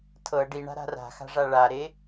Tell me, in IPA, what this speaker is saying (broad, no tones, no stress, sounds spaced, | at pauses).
tʰ ɤ ɖ i ɳ a̤ ɾ a̤ r a̤ x a̤ ʐ a ɭ a ɾ e